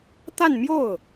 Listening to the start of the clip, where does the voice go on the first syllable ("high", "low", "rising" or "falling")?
falling